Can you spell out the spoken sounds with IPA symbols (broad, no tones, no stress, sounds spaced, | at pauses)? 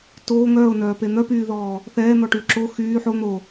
t oː ŋ œː ʊ̯ n œː p e n̪ œ p yː ð ɔː | θ ɛː n̪ ɔ ʈ yː ǁ o x yː ħ o n̪ o